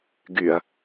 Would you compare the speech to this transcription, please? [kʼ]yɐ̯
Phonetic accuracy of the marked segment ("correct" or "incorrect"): incorrect